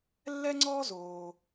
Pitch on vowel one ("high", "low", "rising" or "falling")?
high